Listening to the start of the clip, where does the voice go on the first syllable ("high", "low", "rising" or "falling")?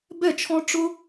falling